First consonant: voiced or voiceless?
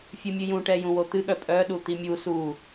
voiceless